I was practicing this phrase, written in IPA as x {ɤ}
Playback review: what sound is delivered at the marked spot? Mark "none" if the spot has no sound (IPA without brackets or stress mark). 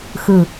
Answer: ɯ